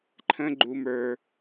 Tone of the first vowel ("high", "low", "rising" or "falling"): high